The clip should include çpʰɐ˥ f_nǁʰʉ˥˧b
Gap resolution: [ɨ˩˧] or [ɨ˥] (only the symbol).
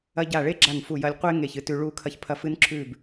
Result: ɨ˥